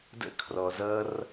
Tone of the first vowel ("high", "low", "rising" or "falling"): high